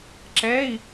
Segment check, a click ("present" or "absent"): present